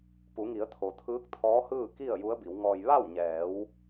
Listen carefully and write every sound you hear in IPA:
p u˩˧ ŋ i˩˧ ə̯ t̪ʰ o˩ t̪ʰ ɯː˧˥ k̚ t̪ʰ ɔː˧˥ h ɯː˥˨ k i˥˨ ə̯ j u˧˥ ə̯ b i˩˧ w ŋ ɔː˧ j ʋ a˥˨ w ɲ ɛː˩˧ w

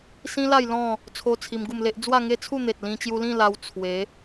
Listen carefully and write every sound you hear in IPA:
s ĩ˦ l a˥˧ j l ɔ̃˥˧ | t͡sʰ o˦ t͡sʰ i˧ m ɡ u˥˧ m l e˦ ʔ d͡z w a˥˧ ŋ e˦ t͡sʰ u˥˧ n̪ e˨ t̚ l ĩ˧ t͡ɕ j u˧ l ĩ˥˧ l a˧ w t͡sʰ w e˨˦

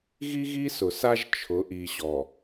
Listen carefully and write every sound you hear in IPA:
ɣ i˦ ɣ i˦ s ʊ˨ s a˦ ʒ t͡ʃʰ ʊ˨˦ ʔ i˨ ɕ ɔ˨

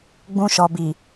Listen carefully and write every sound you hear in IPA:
ɡ͡b ũ˧ ʃ ɔ˨ b i˨

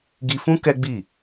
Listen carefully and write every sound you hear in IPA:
ɡ i˧ f ũ˦ k ɛ˦ ɡ͡b i˦˨

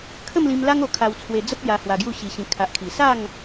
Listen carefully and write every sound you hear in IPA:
kʰ ə˥˧ m l ĩ˧ m l a˦ ŋ o˧ kʰ a˧ w t͡sʰ w e˧ d͡z ə˦ p̚ j a˧ h w a˧ ɡ j u˥˧ ɕ i˧ ɕ ĩ˧ kʰ a˨ ʔ kʰ i˨˩ s a˥˧ ŋ

